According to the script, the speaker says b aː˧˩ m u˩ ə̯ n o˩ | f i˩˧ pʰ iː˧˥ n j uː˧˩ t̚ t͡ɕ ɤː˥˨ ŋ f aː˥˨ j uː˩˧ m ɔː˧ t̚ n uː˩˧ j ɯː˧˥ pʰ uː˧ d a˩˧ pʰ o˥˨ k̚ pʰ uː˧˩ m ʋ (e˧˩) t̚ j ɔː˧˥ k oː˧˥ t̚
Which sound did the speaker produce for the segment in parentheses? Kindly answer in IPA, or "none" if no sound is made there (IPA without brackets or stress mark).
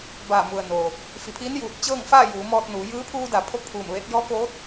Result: e˧˥